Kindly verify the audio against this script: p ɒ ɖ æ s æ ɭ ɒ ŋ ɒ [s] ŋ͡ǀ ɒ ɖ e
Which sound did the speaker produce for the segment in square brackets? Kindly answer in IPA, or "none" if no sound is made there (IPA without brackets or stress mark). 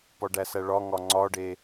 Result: none